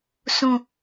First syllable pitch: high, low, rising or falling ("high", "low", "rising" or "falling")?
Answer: falling